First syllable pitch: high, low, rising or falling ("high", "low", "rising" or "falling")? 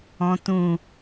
low